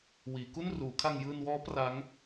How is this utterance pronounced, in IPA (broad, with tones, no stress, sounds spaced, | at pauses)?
w iː˩˦ k u˥˩ n r uː˩˦ kʰ a˧ ŋ j ɯː˧ n w ɔː˦˥ p r a˦˥ ŋ